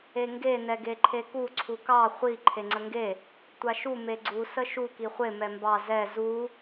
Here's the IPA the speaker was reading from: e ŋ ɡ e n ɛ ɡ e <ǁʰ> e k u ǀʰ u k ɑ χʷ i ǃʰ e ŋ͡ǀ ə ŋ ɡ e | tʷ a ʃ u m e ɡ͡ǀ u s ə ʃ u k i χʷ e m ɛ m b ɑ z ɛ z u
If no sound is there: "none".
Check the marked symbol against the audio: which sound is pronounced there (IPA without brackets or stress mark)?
ǃʰ